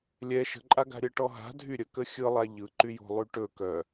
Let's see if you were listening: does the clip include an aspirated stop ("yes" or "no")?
no